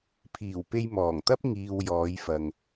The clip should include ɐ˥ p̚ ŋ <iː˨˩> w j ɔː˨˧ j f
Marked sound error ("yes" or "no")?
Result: yes